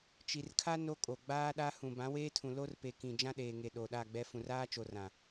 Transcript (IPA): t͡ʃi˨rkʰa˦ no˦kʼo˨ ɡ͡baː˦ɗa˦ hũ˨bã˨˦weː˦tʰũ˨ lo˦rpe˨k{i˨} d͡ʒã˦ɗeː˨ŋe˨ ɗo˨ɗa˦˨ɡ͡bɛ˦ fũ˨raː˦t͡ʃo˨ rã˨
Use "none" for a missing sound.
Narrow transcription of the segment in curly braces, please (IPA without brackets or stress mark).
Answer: ĩ˨